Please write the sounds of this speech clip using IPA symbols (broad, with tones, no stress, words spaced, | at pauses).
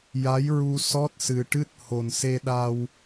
ja˧˥jɹu˧ sɔ˦˥t̚sɨ˨˩ ʈɨ˦˥t̚ho˨˩n se˧ɗa˧w